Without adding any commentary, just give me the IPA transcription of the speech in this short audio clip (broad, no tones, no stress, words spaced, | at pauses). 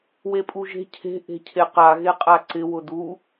wepʼuʒe̤ cʰe̤ ʔe̤cʰeqa ɣeqʼaǀɪ wʊdu